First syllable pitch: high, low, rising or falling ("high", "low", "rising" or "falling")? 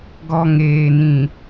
low